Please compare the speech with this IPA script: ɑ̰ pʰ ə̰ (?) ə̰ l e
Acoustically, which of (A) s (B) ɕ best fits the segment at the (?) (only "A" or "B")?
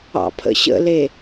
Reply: B